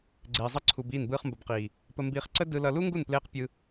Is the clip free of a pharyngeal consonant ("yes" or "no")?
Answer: yes